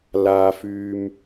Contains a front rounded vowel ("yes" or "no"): yes